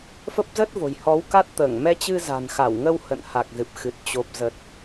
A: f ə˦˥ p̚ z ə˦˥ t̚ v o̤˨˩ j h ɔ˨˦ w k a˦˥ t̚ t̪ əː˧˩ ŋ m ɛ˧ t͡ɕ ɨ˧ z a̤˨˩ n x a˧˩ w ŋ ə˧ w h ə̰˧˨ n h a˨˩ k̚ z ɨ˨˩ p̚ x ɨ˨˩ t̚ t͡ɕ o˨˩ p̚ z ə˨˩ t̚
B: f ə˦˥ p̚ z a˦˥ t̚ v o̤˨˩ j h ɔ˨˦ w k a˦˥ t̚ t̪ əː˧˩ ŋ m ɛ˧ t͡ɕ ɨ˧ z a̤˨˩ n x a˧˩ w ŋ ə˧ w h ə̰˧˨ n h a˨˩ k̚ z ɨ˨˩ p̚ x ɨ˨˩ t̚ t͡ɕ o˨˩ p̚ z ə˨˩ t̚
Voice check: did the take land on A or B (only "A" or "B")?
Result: A